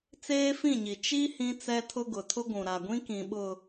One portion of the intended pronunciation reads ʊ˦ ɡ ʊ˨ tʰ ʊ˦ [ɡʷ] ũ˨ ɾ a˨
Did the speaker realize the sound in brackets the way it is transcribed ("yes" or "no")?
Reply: yes